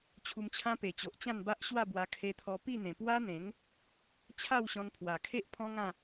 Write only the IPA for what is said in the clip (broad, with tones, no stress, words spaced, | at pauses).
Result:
t͡ɕʰu˧mt͡ɕʰã˦pe˨˩t͡ɕo˨ʔ t͡ɕã˥˧nba˦ʔɕwa˥˧bwa˧ kʰe˧t̪ʰɔ˧ pi˥˧n̪ẽ˨˩ pwa˦n̪ẽ˨˦ŋ | t͡ɕʰa˥˧wɕɔ̃˧npʰwa˨˩kʰe˦ʔ pʰɔ̃˦ŋã˥˧